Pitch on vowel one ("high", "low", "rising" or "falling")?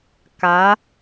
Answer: rising